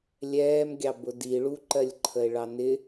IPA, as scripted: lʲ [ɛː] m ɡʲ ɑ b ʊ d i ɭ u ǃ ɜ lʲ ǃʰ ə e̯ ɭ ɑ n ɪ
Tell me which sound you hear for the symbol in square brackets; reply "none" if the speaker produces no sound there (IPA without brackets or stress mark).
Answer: ɛː